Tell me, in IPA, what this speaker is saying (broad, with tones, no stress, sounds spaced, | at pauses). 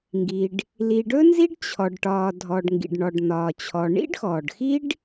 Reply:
ŋ ɡ i˩ ɖ | l i˩ ɖ ɵ˥ n z i˥ ɖ t͡ɕʰ ɔ˩ ɖ ʈ ɒː˩ dʱ ɔ˩ ɖ ŋ ɡ ḭ˩ ɖ ɳ ɔ˩ ɖ n̪ ɒː˩ t͡ɕʰ ɔ˩ ɳ ḭ˥ ɖ x ɔː˩ ɖ x i˥ ɖ